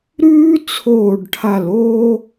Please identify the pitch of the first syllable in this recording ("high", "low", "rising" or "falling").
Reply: high